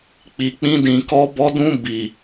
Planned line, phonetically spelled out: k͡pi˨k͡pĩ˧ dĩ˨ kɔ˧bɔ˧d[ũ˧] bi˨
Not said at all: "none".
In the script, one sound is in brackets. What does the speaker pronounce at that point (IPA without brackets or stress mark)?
ũ˧